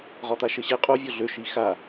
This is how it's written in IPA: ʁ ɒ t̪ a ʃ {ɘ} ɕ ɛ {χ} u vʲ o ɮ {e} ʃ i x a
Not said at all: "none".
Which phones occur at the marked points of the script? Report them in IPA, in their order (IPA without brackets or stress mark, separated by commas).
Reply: ɘ, qʼ, ø